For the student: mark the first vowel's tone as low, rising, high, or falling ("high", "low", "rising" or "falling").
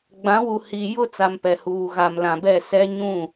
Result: rising